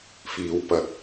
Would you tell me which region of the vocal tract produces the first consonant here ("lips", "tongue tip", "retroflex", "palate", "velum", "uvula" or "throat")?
lips